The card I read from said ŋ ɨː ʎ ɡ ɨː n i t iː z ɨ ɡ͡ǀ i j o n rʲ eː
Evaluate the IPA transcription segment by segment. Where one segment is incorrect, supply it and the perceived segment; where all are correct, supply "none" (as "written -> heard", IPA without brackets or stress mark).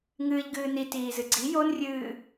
eː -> ɨː